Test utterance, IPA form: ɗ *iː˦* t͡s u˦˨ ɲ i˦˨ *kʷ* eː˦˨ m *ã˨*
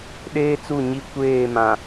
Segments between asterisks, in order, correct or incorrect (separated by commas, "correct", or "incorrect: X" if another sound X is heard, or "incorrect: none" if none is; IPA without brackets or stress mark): incorrect: eː˦, correct, correct